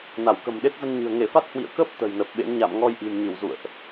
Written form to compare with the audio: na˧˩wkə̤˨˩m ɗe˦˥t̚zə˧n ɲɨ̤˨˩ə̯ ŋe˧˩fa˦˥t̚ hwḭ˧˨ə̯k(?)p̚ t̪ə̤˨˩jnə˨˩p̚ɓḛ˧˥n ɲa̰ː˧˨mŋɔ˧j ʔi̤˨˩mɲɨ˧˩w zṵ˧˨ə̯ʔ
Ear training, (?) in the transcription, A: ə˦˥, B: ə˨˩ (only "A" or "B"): A